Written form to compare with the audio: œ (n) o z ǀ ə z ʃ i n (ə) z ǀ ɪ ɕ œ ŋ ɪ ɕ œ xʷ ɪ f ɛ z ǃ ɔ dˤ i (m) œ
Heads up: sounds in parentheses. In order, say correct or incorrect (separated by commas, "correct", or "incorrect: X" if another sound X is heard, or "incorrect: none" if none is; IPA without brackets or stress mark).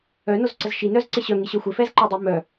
correct, incorrect: œ, correct